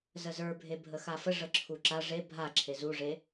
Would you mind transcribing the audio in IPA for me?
z ə z ə˞ bʱ e bʱ ə x a f ə ʐ ə ǁʰ u ǁ a ʐ e bʱ a ǁʰ e z u ʐ e

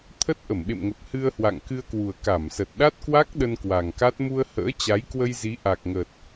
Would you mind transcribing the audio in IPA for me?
t̪ʰ ə˦˥ t̚ ʔ ə˧˩ m ɓ ḛ˧˨ m ŋ ə˨˩ p̚ h ɨ˧ ə̯ h w a̰˧˨ ŋ k ɨ˧ ə̯ k w u˨˩ ə̯ k a˧˩ m s ə˨˩ t̚ ɗ a˦˥ t̚ k w a˦˥ k̚ ɗ ə˧ n k w a˨˩ ŋ k a˦˥ t̚ m u˧ ə̯ h ə̰ː˧˥ t͡ɕ a˨˦ j k w ə˧ j z i˨˦ ʔ a˨˩ k̚ ŋ əː˨˩ t̚

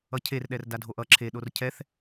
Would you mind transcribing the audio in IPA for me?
ʌ cʰ e r ɗ ɛ r d a dʱ o ʔ ʌ ǁʰ e ɗ o r cʰ ɛ θ

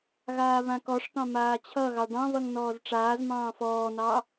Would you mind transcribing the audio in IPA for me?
ɣ aː β ã k ɔ ʂ t̪ ɑ̃ m aː t͡ɕʰ ʌ ɣ ɑ ɖ ɑ̃ β ʌ ŋ n ɔː z ʈ͡ʂ aː z m ɑ̃ː f ɔː n ɑ

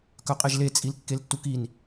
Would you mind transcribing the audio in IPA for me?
k œ qʼ e ʒ l e t͡sʼ i l kː e l tː u k i n

